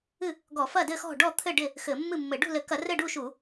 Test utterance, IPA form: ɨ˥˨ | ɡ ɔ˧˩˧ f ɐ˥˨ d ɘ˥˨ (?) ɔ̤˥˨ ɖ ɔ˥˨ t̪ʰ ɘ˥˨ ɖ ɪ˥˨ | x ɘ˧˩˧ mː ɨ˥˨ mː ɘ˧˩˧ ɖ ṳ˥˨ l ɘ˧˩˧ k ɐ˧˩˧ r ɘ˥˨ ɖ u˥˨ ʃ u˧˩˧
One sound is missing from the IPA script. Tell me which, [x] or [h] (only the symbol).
x